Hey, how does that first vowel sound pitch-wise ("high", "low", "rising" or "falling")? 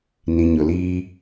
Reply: low